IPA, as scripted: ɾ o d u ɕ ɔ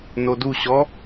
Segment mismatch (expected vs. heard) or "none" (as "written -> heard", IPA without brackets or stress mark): ɾ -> n